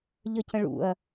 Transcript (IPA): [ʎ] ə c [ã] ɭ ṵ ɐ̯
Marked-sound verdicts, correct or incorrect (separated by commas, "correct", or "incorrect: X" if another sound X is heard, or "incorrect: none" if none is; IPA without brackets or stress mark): correct, incorrect: ə̃